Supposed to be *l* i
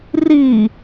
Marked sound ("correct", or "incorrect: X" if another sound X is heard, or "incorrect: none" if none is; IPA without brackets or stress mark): incorrect: r